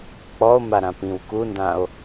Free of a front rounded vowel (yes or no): yes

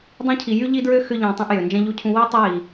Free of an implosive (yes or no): yes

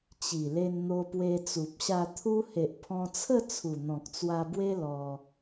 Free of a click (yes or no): yes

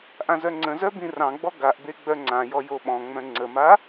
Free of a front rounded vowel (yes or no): no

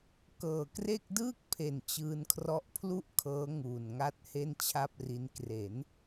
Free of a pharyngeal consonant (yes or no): yes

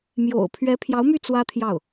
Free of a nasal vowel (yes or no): yes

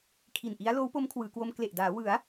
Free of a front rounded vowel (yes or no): yes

